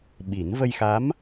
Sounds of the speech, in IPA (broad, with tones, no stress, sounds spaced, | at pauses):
ɓ i˨˩˦ n v ə˧ j x a˧˥ m